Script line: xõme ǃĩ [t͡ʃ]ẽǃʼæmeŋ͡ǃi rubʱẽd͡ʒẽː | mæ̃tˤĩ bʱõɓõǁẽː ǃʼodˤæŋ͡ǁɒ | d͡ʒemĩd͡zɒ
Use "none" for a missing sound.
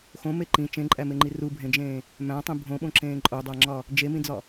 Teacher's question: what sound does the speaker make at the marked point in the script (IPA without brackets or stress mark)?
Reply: t͡ʃ